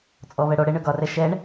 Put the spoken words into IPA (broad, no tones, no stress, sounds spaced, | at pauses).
t͡sʼ ɔ v ɛ ɽ o ɽ e ɳ ø ɡ ɒ r ɛ ʃ ɛ ɳ